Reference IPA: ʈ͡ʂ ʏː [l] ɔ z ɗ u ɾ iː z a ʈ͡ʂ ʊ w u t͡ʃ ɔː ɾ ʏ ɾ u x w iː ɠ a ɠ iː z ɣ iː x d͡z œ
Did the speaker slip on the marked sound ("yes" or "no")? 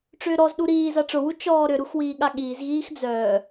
yes